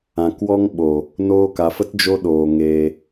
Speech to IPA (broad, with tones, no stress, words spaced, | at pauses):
ã˨kwɔ˦ŋ ɓo˨ | noː˧ka˨fə˦t d͡ʒo˦ɗoː˨ ŋeː˧